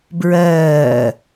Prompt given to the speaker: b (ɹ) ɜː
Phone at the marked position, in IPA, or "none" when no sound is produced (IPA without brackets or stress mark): ɹ